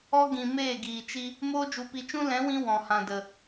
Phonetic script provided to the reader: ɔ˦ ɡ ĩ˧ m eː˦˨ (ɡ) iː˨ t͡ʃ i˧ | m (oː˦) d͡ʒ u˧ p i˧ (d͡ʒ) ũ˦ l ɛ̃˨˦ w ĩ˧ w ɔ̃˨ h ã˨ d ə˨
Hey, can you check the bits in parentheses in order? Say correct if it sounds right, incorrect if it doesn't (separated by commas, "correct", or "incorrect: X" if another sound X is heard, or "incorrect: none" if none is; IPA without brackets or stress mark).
correct, correct, incorrect: t͡ʃ